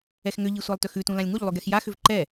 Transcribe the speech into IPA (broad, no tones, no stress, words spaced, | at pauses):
ɛxŋʏʎi sʷɑlˠtʏxʉtũ lãlʲŋuʎlˠʉ ɡɛxjaxʏv ǃɛ